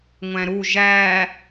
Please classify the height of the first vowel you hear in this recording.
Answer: low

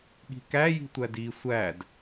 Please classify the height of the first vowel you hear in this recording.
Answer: high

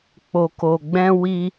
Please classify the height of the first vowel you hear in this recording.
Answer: mid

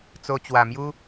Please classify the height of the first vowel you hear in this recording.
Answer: mid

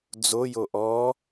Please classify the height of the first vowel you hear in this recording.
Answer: mid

